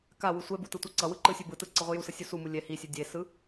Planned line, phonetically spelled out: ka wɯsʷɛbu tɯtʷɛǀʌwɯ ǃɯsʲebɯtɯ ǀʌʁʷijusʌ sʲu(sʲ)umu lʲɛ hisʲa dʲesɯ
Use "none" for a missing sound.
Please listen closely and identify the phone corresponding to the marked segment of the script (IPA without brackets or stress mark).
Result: s